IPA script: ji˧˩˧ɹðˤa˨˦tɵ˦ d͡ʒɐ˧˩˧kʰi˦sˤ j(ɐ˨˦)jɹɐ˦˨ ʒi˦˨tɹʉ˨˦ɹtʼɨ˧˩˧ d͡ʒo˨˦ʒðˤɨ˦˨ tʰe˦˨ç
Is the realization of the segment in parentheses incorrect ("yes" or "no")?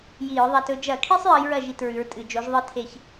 no